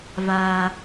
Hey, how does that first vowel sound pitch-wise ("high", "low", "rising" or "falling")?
high